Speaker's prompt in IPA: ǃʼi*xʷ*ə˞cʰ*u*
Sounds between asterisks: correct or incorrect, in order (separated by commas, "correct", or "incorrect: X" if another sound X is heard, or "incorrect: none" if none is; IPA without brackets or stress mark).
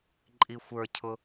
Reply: correct, incorrect: ʊ